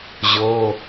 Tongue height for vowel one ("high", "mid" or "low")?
mid